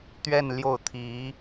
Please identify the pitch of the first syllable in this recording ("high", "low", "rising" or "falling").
falling